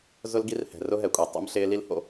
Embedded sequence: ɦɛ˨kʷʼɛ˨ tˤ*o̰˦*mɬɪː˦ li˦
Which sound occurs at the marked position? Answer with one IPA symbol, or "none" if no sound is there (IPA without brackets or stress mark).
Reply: o̰˦